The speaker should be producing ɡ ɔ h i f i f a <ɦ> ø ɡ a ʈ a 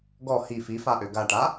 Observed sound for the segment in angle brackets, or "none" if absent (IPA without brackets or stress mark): ʔ